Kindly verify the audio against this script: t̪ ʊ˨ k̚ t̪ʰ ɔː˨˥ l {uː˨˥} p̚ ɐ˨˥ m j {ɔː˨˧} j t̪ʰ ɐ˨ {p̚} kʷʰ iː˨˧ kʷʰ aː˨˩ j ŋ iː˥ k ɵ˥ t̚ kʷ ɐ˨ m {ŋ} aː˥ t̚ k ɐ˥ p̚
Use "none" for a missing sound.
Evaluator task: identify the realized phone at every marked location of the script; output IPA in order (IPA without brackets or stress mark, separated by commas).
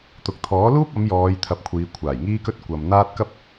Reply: uː˥, ɔː˨˧, p̚, n̪